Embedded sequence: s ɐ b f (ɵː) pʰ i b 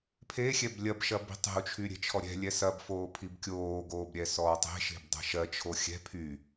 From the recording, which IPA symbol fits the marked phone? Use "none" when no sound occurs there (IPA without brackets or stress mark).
oː